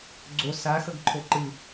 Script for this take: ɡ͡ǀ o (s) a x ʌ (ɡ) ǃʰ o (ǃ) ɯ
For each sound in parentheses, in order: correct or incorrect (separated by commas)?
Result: correct, correct, correct